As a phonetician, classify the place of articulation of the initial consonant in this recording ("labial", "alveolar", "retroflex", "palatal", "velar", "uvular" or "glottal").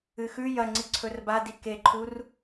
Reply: velar